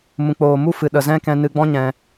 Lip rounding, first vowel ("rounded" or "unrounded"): rounded